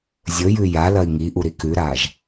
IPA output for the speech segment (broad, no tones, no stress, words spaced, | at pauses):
zʲɵjʉ jalɐi̯ ŋiʔuɾi kʉɾaʒ